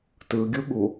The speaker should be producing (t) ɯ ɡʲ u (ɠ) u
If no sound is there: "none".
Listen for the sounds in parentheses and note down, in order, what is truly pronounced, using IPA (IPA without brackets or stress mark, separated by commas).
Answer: t, ɠ